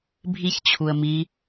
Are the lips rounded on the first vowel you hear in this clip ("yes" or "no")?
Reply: no